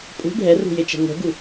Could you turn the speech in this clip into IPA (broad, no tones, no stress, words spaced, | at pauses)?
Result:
pʼṳ ɖʱɛrṳjet͡ʃɛ̤ ŋʷɛ̤ɡu